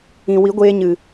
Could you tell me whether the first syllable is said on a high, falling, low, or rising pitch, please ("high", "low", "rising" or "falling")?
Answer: low